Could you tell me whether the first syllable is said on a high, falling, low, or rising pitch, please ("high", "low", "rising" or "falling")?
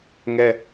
high